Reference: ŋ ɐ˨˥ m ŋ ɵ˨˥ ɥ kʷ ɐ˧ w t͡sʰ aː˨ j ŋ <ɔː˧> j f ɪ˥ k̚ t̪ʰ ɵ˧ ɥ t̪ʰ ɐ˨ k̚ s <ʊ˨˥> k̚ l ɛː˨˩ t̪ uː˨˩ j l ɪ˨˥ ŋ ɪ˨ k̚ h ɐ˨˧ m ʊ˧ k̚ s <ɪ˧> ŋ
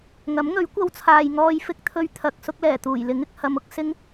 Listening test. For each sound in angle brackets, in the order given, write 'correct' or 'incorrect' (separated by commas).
correct, incorrect, incorrect